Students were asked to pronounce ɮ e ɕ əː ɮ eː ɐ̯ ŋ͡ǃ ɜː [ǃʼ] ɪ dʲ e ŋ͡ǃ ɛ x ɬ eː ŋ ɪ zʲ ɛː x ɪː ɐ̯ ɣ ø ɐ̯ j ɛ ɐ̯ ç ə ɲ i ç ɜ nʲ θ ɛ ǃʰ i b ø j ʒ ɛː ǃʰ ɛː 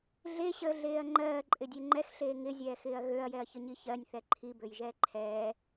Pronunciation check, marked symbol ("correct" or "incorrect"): correct